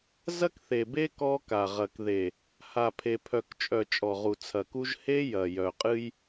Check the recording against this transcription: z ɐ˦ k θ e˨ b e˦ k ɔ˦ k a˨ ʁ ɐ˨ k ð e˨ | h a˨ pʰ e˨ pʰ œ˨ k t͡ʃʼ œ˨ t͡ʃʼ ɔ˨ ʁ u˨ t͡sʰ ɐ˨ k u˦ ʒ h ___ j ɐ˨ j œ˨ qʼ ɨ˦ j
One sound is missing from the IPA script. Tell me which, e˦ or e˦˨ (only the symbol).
e˦